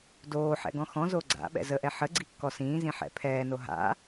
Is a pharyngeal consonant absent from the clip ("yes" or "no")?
no